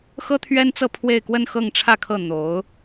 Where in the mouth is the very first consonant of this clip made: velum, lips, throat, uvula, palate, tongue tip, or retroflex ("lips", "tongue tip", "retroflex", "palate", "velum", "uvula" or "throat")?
velum